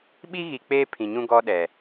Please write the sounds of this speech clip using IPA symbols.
ɓ i˦ ɣ i˨ k͡p eː˦ pʰ ĩ˨ ɲ ũ˦ ɡ ɔ˦ ɗ ɛ˨

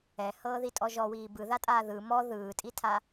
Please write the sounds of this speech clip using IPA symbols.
ɛ h ɤː ð i tʼ ɔ ʒ ɔ w iː b ɯ ð a tʼ aː ð ɯ m ɔ ð ɯː tʼ i tʰ a

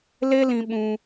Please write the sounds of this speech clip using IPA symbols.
l e˦ l ĩ˧ ɓ ũ˧

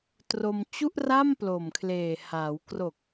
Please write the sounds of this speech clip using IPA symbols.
t r o˧ m t͡ɕ u˥˩ ʔ r a˥˩ m p l o˨˩ m kʰ l eː˨˩ h a˩˦ w k r o˨˩ k̚

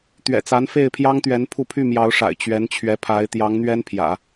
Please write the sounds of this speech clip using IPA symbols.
t̪ ɥ ɛ̰˨˩ t͡s a˧˥ n f e˥˩ ɪ̯ pʰ j ɑ˥ ŋ t̪ ɥ ɛ˧˥ n pʰ u˥˧ pʰ y˥˩ m j ɑ˧˥ ʊ̯ ʂ a̰˨˩ ɪ̯ t͡ɕ ɥ ɛ˧˥ n t͡ɕʰ ɥ ɛ˧˥ pʰ a˧˥ ɪ̯ t̪ j ɑ˧˥ ŋ n̪ ɥ ɛ˥ n pʰ j ä̰˨˩˦

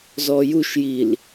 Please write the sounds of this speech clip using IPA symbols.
z ɔ j u ʃ j i l

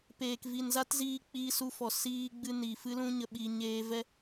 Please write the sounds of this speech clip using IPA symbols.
p eː˨ k v i˨ n z a˦ t z iː˧ k͡p iː˧ s u˧ f ɔ˨ s iː˧ ɡ͡b ɨ˧ n iː˨ f ɨ˦ l ũ˦ ɲ ə˧ ɓ i˧ ɲ eː˧ v ɛ˦

